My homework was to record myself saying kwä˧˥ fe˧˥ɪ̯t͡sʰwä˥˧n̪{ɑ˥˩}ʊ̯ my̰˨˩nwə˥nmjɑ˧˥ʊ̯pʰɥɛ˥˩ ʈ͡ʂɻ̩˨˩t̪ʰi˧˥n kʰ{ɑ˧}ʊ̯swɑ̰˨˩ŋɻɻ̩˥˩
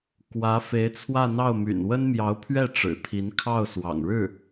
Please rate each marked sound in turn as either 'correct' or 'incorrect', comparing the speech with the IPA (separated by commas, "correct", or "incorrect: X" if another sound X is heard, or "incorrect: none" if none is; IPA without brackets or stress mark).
correct, incorrect: ɑ˥˩